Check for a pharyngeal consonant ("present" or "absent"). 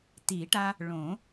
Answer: absent